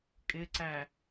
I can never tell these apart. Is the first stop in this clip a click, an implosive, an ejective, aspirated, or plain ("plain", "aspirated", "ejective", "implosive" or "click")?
ejective